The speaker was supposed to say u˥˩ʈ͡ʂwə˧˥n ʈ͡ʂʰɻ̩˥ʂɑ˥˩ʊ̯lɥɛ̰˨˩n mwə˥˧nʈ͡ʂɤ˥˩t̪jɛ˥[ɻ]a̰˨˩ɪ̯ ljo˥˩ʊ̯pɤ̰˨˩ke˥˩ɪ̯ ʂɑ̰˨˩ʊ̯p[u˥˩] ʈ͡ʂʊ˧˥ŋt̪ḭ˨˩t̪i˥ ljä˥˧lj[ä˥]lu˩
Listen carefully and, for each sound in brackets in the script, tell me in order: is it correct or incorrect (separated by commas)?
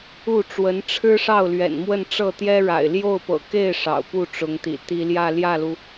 correct, correct, incorrect